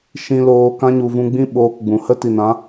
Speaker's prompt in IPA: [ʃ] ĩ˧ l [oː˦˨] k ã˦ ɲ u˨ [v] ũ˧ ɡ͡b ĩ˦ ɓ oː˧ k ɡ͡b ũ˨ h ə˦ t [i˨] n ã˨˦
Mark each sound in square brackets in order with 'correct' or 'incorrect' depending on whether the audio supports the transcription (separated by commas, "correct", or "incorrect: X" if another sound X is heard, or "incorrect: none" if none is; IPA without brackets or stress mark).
correct, incorrect: oː˧, correct, correct